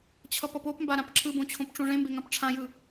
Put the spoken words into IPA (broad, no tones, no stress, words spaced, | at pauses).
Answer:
t͡ɕʰʌpʌpopmba ɾãpǁʰɯbõ t͡ɕʰõpʈ͡ʂõʐẽmbe ŋãpʈ͡ʂʰãjɯ